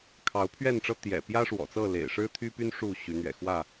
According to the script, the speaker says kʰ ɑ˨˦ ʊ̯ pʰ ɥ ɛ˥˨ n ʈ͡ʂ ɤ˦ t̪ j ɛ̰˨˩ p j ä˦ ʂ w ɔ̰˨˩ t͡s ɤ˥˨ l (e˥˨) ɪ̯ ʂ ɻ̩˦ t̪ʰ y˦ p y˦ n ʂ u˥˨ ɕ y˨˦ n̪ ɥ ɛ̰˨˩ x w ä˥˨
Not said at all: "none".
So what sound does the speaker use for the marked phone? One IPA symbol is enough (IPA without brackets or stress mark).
ḛ˨˩